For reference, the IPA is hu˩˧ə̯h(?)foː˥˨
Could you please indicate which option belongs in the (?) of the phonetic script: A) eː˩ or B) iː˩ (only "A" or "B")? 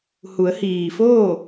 B